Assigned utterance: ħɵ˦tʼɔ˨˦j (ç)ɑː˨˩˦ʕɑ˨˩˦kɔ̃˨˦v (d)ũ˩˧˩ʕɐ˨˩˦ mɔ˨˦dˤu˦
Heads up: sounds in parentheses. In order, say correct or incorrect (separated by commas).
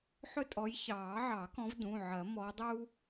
correct, correct